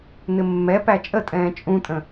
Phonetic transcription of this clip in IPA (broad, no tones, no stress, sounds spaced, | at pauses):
n̪ ɪ mː ɛ p æ t͡ʃʼ ə tʼ ɛ̃ː t͡ʃʼ ũ tʼ ə̃